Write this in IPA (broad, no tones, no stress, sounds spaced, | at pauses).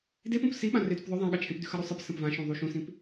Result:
d e p õ p s i ɓ ã r e d ʉ p ðˤ ɵ ðˤ ã ɠ ɐ t͡ʃʰ ẽ p d ʉ x ɐ ɾ o sˤ ɨ p s ɐ̃ p v ã ʃ ũ ðˤ u ʃ ũ s ĩ p